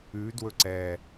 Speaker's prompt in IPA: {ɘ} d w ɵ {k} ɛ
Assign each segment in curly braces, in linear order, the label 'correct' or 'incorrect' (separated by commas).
incorrect, incorrect